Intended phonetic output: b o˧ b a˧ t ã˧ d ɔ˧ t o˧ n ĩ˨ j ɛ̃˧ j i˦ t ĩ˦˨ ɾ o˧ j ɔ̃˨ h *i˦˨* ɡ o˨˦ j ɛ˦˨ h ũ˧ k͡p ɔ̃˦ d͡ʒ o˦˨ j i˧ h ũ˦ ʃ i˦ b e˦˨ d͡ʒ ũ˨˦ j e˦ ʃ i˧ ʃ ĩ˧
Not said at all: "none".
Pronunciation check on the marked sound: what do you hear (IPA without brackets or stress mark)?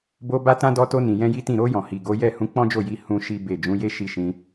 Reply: i˨